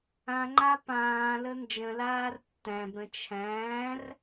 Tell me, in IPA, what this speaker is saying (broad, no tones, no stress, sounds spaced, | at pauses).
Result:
ã ŋ͡ǃ a p ãː l ə n d͡ʒ ə̃ l aː r tː æ̃ b ɾ ə̃ t͡ʃʰ æ̃ː r